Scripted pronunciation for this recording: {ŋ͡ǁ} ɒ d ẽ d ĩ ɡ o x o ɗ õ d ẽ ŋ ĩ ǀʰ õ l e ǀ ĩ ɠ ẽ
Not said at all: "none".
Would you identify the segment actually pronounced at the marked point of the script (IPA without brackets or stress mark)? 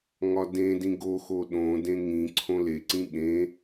ŋ